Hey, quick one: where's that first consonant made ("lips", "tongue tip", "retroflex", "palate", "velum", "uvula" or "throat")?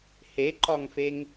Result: throat